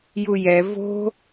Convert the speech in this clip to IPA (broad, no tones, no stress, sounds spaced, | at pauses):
j u j ɛ v o̤